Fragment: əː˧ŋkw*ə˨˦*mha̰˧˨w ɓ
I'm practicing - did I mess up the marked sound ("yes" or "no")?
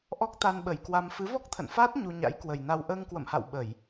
yes